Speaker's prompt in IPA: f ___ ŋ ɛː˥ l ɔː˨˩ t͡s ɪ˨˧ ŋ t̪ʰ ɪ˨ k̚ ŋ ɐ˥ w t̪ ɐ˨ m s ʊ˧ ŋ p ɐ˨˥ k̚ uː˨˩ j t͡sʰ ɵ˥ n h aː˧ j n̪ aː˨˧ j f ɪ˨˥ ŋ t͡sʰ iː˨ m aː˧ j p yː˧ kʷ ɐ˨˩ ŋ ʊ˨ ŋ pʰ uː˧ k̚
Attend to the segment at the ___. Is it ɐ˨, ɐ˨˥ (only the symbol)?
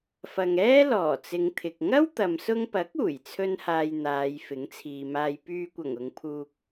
ɐ˨